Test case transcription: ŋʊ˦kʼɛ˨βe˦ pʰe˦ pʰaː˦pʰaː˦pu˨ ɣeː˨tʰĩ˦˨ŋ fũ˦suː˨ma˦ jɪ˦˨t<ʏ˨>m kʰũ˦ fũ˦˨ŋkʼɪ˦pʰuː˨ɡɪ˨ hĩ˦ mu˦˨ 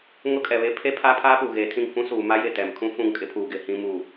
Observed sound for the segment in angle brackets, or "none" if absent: ɛ˨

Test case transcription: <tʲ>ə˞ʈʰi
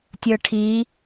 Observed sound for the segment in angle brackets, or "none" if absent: tʲ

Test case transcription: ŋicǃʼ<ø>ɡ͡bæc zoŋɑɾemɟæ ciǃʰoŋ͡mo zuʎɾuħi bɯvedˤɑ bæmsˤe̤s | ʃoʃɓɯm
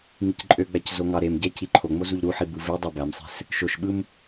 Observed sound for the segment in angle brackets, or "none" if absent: ø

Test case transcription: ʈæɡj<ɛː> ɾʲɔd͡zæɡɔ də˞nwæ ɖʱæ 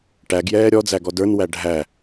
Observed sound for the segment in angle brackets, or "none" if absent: ɛː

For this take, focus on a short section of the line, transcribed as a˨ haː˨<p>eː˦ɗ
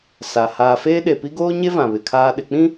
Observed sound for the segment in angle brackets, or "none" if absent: f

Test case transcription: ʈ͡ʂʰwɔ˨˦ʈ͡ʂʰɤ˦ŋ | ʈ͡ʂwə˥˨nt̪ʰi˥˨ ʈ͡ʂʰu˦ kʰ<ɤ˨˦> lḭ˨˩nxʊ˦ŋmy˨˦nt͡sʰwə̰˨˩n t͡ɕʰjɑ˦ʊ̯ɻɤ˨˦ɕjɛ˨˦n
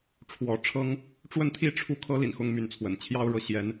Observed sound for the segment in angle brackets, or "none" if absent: ɤ˦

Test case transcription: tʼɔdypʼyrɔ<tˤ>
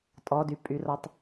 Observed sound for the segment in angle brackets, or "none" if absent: tˤ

